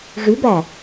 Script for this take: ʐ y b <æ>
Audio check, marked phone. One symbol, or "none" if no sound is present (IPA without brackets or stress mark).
æ